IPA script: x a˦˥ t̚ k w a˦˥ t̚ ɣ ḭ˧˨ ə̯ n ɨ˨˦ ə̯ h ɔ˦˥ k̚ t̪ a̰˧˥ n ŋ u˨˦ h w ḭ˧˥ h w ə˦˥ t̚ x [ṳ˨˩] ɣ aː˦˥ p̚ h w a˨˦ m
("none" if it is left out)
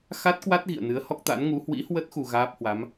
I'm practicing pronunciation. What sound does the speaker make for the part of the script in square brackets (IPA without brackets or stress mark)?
u˧